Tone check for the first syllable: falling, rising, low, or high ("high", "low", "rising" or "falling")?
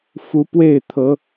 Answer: rising